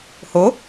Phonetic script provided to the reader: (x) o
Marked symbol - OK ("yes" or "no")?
no